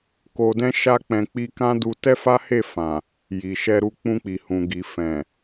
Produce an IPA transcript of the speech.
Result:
k o˧ d ɛ̃˦ ʃ a˦ k͡p ɛ̃˧ k͡p i˧ k ã˦ d u˧ t ɛ˦ f a˦ h e˦˨ f ã˨ | j i˨ ʃ ɛ˧ ɾ u˧ k͡p ũ˧ k͡p i˨ h ũ˨ ɡ i˨ f ɛ̃˨

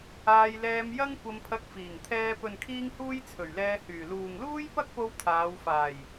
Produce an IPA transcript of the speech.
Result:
aː˧ j l ɛː˧ m j ɐ˥ ŋ kʷ ɐ˧ m pʰ ɐ˧ k̚ f iː˨˩ ŋ t̪ʰ ɛː˧ p ɵ˨ n kʰ iː˧ ŋ h uː˧ j t͡sʰ ɵ˨˩ ɥ l ɛː˧ h yː˨˩ l uː˨ ŋ l uː˥ j p ɐ˥ k̚ p o˧ w t̪ʰ aː˨˧ w f aː˨˩ j

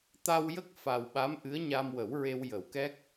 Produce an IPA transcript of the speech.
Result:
t̪ a˧ w j ə˦˥ k̚ f a˨˩ w ɓ a˧˥ m ʔ ɨ˧˥ ə̯ ɲ a˧ m w ə˨˩˦ w ɹ e˧ w j ə˨˩˦ w k ɛ˦˥ k̚

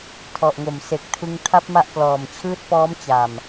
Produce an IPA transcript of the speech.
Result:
tʰ ɔ˨˩ ʔ ŋ o˨˩ m s e˨˩ k̚ tʰ ɯ˧ ŋ tʰ a˦˥ p̚ m a˦˥ ʔ k l ɔː˨˩ m t͡ɕʰ ɯː˦˥ t̚ p ɔː˦˥ m t͡ɕ a˨˩ m

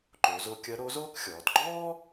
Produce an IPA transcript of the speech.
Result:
ǃ o˩˧ z o˧ kʲ ɐ˧˥ ɾ o˧˥ z oː˥ k xʲ ɔː˩˧ t ɡ͡ǃ ɔː˥

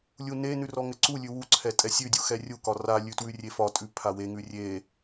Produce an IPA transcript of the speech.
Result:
lʲ u n e n ʉ r ɔ ŋ ɘ ǀ u lʲ ʉ w u ǀʰ ɛ tʼ ɛ sʲ ʉ dʲ u x ɛ rʲ u k ɒ r a lʲ ʉ t w ʉ rʲ e f ɒ tʼ ʉ pʰ a w e ŋ ʉ rʲ e

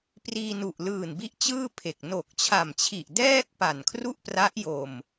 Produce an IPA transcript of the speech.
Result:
p r iː˧ n u˨˩ ʔ l ɯː˨˩ n b i˦˥ ʔ t͡ɕ ɯː˥˩ pʰ e˨˩ k̚ n o˨˩ k̚ t͡ɕʰ a˨˩ m t͡ɕʰ i˨˩ ʔ d ɛː˥˩ k̚ p a˨˩ n kʰ r u˥˩ ʔ p r a˦˥ ʔ j o˨˩ m

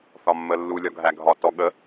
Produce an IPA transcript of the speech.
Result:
θ ɒ mː ə lː u lʲ ɒ ɡʱ æ ɡʱ ɒ t ɔ ɠ ə

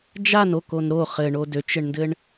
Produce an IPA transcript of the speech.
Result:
d͡ʒ a n o k o n ɾ o χ ɘ ɳ o d ø t͡ʃ ɘ ɳ n d ɘ ɳ

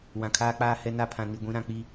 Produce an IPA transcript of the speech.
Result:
w ã˨ kʰ aː˦ k͡p aː˦ h ɛ˦ n a˦ pʰ ã˨ n i˨ ɡʷ ĩ˨˦ ɾ ã˨ k͡p i˦

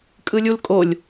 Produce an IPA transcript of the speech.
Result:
kʼ ɯ lʲ u l kʼ o lʲ

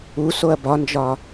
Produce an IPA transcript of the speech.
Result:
u s o ɐ̯ b ɒ n d͡ʒ ɒ

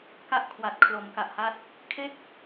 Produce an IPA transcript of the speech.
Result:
k a˦˥ ʔ kʰ w a˨˩ t̚ kʰ l o˩˦ m k a˨˩ ʔ h a˦˥ t̚ | kʰ e˥˩ k̚

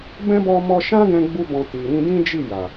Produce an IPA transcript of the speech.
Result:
b ɛ̃˦ b ɔ˧ m ɔ˧ ʃ ã˦ ɡ ɛ̃˧ ɡ͡b u˧ b ɔ̃˨ t i˨ ɾ ĩ˧ d ĩ˦ d͡ʒ i˦˨ j a˨

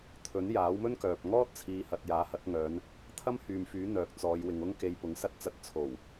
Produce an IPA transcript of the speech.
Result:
t̪ʰ ɵ˨˥ n j aː˨˥ w m ɵ˥ n k œː˨ p̚ ŋ ɔː˥ t̚ t͡sʰ iː˨˧ h ɐ˨ t̚ j aː˨˥ h ɐ˨˥ t̚ ŋ œː˨˧ n | t̪ʰ ɐ˥ m h yː˨ m f yː˨˥ n̪ œː˨ k̚ t͡s ɔː˨˧ j w ɪ˨ ŋ ʊ˥ ŋ k e˧ j p ʊ˨˥ ŋ s ɐ˥ t̚ t͡s ɐ˧ t̚ t͡sʰ o˨˩ w

